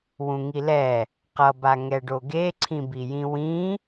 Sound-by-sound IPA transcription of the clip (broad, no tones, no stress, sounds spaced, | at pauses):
w ũ ŋ i l ɛ | q ʌ b a ŋ ɛ ɖ o ɡ e ǀʰ ĩ b i j ĩ w ĩ